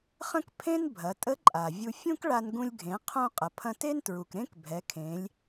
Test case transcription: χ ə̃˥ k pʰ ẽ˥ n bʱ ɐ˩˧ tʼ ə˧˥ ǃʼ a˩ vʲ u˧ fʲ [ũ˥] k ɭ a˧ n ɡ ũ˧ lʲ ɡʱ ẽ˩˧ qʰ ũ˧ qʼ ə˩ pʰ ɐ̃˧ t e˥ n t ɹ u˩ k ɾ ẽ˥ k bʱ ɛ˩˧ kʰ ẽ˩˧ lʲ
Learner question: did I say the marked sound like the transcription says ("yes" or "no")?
yes